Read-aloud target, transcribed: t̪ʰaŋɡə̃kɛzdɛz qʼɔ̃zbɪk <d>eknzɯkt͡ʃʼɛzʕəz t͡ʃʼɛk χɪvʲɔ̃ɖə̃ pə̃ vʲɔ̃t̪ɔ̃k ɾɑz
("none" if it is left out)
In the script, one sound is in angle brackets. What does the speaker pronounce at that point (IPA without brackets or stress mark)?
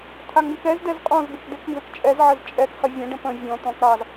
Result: d